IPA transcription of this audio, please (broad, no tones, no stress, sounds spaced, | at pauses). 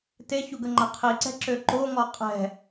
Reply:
t e ç u ɡ ə ŋ͡ǃ a qʰ i ǀ ɛ̤ ǁ ø ǃ o ŋ ɔ qʼ ɛ̤